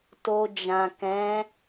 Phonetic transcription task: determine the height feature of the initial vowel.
mid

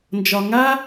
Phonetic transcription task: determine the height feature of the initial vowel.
low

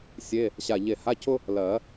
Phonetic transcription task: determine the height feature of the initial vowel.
mid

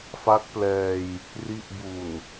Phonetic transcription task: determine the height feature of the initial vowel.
low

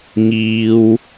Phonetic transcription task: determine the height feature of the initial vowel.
high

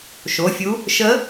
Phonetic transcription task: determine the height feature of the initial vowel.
mid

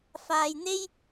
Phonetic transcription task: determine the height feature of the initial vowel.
low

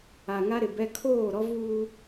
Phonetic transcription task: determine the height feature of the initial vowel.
low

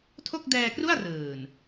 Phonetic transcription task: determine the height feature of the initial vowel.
mid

